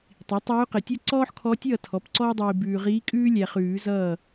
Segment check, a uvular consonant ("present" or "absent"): present